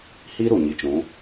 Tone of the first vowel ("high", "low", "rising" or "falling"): high